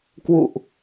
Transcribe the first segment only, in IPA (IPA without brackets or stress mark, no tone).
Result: k